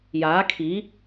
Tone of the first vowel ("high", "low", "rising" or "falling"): rising